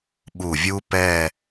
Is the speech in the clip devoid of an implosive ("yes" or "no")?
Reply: no